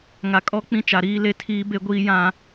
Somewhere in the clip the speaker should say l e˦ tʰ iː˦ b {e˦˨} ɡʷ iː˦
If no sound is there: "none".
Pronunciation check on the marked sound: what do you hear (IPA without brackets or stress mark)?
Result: e˦